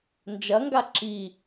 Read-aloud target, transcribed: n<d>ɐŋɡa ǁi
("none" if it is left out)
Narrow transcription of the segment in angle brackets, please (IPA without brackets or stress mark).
d͡ʒ